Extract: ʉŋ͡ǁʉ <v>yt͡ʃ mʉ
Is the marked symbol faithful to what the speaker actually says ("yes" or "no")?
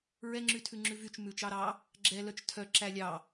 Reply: yes